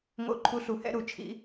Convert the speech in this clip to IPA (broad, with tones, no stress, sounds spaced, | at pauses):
ŋ o̰˥˨ ǃʰ u˥ ɬ u˧˥ h ɛ̰˥ ɾ u˩˥ t͡ʃʰ ḭ˧˥